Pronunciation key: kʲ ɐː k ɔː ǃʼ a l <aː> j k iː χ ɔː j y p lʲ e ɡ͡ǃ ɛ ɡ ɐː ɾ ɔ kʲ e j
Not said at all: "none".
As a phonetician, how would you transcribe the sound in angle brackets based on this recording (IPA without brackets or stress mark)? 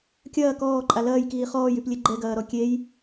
ɐː